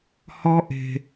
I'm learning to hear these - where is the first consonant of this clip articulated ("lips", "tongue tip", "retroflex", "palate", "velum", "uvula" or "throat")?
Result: throat